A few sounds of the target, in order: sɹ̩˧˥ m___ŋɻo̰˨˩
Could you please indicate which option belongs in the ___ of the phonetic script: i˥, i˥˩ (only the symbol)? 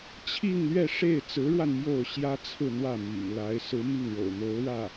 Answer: i˥˩